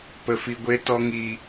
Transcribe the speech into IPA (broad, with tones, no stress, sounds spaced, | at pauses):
p ə˨ f i˨ ɡʷ e˨ t ɔ˨ ŋ i˨